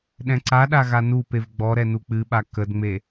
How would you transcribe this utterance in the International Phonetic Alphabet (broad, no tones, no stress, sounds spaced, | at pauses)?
ɗ ɛ̃ ǀ a ɗ a ɣ a n u p e v ɡ͡b ɔ ɾ ɛ n u k͡p ɨ ɓ a k ə d ŋ͡m e